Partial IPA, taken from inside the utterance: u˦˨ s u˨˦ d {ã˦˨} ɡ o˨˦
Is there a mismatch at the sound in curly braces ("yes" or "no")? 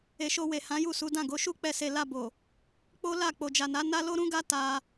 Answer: no